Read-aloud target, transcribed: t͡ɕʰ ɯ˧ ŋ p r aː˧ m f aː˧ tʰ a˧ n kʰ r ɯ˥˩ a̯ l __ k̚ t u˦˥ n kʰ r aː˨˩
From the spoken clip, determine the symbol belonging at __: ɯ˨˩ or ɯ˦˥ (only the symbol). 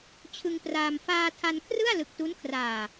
ɯ˨˩